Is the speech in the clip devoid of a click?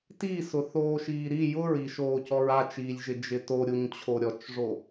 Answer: yes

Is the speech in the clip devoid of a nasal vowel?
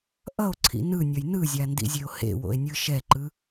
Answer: yes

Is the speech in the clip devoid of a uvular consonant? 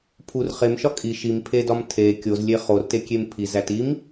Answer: no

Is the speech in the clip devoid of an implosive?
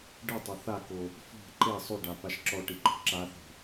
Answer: yes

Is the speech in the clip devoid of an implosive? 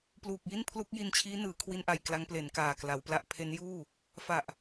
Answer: yes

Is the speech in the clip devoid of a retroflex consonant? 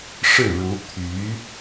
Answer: no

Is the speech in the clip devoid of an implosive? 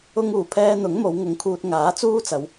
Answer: yes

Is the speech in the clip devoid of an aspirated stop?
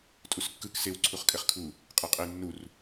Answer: no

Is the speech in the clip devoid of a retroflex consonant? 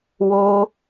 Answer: yes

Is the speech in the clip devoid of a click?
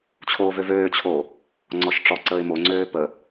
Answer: no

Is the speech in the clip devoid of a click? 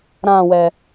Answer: yes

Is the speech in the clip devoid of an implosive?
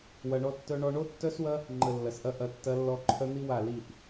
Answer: yes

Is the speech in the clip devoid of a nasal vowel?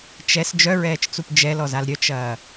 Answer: yes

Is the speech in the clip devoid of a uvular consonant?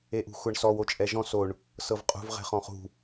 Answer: no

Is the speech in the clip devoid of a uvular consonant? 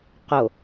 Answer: no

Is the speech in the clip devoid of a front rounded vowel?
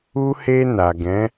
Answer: yes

